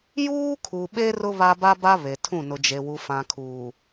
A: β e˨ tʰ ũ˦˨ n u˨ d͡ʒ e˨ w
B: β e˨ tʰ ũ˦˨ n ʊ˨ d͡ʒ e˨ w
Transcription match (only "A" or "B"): B